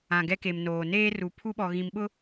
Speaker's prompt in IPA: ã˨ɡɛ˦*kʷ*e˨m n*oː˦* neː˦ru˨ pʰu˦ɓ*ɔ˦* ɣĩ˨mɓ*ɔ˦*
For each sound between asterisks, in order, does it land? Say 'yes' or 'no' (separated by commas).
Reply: no, no, no, no